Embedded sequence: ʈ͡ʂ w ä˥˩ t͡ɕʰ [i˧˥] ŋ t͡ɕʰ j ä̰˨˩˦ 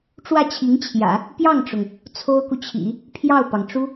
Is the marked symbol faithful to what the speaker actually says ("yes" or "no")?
yes